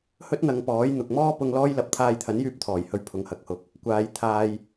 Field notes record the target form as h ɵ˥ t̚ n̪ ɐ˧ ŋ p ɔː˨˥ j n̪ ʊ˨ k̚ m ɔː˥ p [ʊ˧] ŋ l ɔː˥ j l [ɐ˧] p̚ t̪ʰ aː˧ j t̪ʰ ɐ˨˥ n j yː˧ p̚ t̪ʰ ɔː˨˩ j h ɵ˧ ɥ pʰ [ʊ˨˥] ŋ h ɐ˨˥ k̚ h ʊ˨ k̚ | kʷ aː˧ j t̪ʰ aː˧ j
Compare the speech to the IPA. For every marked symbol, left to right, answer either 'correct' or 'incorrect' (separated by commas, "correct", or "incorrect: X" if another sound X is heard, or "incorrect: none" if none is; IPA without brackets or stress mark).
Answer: correct, correct, incorrect: ʊ˨